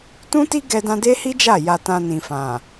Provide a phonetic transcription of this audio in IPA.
tũ˦ti˦ɡɛ˧dã˧ de˦hi˦d͡ʒa˦˨ ja˧tã˧nĩ˨fã˨

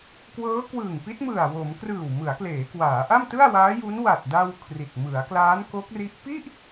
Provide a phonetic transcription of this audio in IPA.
kwɤː˦˥kwɯː˨˩ŋpi˦˥t̚mɯ˨˩a̯ wo˩˦m krɯː˨˩wmɯ˩˦a̯kleː˩˦kwaː˩˦ ʔa˥˩mtɯ˥˩a̯waː˦˥ju˦˥n wa˨˩t̚ da˧w kʰri˨˩t̚ mɯ˩˦a̯klaː˦˥nko˦˥k̚ri˦˥ʔ pi˥˩ʔ

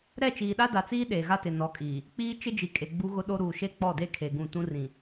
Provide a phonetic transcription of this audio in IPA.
ɾɛ˦˨t͡ʃiː˨ɗa˦ da˨t͡siː˦ ɗeː˨ɣa˦tɪ˨ nɔ˨˦kʼiː˨ | k͡piː˦ t͡ʃɪ˦d͡ʒi˨kʼe˨ ɡ͡bu˦ɣʊ˦ɗo˦ ɾuː˨ʃe˦˨k͡pɔ˦˨de˦ kʰe˨ ɡũ˦˨ tũ˦rĩ˨

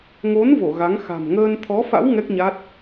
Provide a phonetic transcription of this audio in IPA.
ŋo˨˦n vo˧˩ ɣa˨˦ŋ xa̤˨˩mŋəː˧n t̪ʰɔ˨˦fa̰˧˥w ŋɛ˦˥k̚ɲa˦˥t̚

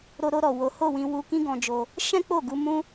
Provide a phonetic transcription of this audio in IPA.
ɾo˧ɾo˧ɾɔ˨ wo˨˦ho˦˨wĩ˧wu˧ kĩ˦ɡɔ̃˧d͡ʒo˧ | ʃɛ̃˦k͡po˦˨ɡu˧ mũ˦

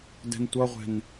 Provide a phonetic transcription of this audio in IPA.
dɛ̤ntʷʌʁʷɛ̤n

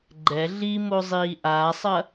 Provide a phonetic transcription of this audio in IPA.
ɡ͡ǃɛ ɮimo zˤiːʔaːsˤɐ

